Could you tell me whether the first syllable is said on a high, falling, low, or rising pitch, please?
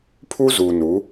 high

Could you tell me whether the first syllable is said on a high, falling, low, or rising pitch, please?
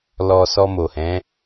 low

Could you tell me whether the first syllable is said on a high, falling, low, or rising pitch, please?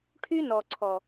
high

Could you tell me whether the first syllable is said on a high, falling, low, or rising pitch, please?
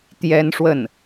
high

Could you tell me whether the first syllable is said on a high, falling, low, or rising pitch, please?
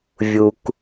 low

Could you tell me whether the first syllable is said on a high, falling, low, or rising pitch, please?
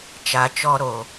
low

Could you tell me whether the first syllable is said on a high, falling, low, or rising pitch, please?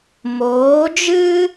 rising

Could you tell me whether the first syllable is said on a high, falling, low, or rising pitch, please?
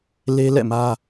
high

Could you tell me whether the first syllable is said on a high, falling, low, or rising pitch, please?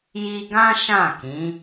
high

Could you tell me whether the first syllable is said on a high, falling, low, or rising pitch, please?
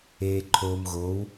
low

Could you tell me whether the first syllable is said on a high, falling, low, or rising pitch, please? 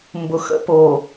low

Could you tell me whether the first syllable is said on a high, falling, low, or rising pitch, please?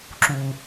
low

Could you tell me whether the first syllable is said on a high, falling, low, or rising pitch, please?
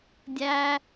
low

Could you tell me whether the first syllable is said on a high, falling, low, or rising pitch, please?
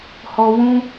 high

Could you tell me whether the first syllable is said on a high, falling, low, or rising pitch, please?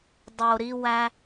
low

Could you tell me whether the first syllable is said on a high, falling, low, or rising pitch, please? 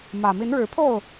low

